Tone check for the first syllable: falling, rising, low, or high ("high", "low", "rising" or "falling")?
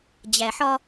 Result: low